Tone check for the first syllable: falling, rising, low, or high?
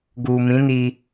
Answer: low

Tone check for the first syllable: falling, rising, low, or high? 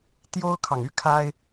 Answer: high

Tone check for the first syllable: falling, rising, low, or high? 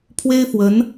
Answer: high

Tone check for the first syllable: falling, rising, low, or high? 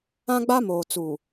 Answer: high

